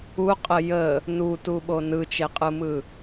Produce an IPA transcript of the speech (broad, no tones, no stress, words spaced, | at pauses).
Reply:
uqʼə jə | nutuɓo nɯt͡ʃeqʼɯmɯ